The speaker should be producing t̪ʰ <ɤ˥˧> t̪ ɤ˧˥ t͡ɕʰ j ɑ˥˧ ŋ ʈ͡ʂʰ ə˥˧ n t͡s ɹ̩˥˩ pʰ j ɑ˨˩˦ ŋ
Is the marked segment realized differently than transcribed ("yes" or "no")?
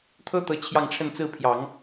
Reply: yes